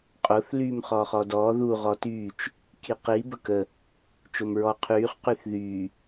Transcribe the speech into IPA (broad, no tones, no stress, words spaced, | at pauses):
qʼoθ lyːmχɔːχɔdɔː ðu ʁɔtyːt͡ʃ | kiqi bəkə | t͡ʃomɹɔ qʰyːχ qyθðyː